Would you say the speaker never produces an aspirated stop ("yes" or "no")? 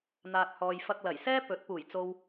yes